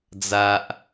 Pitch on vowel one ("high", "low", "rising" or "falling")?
high